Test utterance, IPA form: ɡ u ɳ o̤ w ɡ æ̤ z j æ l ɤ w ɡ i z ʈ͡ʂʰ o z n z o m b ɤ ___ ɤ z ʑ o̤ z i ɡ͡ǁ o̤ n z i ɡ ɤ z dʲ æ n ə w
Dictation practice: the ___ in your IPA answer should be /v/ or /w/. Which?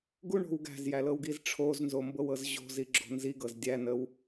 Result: w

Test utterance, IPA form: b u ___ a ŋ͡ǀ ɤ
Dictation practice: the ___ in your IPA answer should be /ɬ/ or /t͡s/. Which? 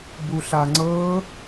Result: ɬ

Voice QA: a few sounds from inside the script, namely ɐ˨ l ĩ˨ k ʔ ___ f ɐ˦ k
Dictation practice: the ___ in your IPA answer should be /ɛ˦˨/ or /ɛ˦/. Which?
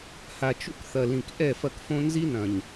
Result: ɛ˦˨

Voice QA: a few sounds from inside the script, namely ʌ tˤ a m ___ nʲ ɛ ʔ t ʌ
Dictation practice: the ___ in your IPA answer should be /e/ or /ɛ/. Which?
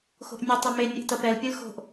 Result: e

